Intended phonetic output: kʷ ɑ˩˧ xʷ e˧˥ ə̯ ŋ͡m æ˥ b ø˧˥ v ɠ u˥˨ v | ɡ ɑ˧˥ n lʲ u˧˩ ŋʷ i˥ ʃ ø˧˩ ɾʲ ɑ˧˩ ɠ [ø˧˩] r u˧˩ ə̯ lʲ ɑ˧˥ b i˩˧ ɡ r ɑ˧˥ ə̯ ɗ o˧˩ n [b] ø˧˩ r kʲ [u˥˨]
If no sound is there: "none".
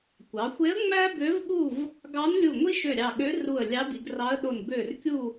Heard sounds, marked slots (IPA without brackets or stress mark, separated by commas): ø˧˥, b, u˥˨